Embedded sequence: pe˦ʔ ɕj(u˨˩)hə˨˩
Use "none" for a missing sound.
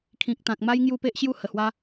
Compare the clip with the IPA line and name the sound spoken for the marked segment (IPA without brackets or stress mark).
u˥˧